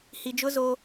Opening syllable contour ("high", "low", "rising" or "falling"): low